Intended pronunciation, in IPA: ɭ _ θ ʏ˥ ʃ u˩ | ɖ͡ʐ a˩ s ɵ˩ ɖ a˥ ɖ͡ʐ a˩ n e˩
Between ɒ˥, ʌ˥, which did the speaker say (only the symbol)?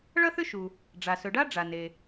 ʌ˥